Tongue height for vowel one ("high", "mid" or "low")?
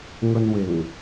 mid